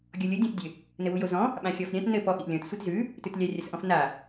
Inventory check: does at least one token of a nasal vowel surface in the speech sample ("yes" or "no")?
yes